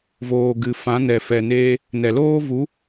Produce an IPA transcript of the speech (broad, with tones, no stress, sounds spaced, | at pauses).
v oː˨ ɡ ɨ˨ f ã˨˦ n ɛ˨ f ɛ˨ n eː˧ | n ɛ˨ l oː˦ v u˨˦